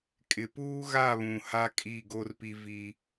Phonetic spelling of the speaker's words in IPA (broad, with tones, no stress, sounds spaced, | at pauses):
kʼ ɪ˨ p uː˦ ɣ a˦˨ β ũ˨ h a˦ kʼ i˦˨ ɡ o˦ r p i˦ v i˦